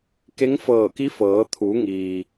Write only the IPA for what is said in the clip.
ke˧˥ŋfɤː˧˩ki˧˥fɤː˩˧ t̪ʰu˩˧ŋiː˩

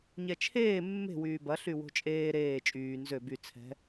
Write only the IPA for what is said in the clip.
ɲɛt͡ʃʰeː mːe̤ wyːbɐ ɬywo̤t͡ʃʼeː ɾeː t͡ʃʼyː nzø by t͡sʰɛ̤

